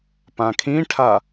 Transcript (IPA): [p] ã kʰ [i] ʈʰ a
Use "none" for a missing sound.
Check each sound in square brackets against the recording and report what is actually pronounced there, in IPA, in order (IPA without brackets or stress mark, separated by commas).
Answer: p, ĩ